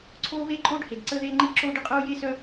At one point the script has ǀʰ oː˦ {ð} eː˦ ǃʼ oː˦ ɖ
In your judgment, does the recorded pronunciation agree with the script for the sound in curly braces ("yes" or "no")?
no